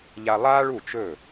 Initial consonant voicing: voiced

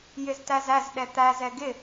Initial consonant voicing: voiced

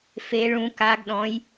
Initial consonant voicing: voiceless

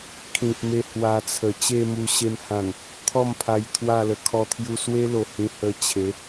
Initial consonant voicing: voiceless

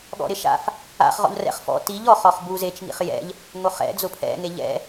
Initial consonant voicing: voiced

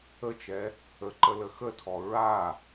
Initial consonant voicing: voiceless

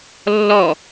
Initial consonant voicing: voiced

